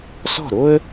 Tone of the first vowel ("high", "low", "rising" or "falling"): falling